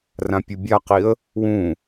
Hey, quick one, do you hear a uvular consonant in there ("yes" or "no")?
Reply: yes